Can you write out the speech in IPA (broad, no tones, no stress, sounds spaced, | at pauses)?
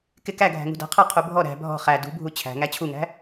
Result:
k ɪ k æ ɡʱ æ̤ ŋ ṳ d æ̤ qʰ ʌ qʰ u bʱ ɔ ɾ æ̤ bʱ ɔ̤ χ æ d ṳ bʱ u t͡ɕʰ æ̤ ŋ æ t͡ɕʰ u ŋ æ̤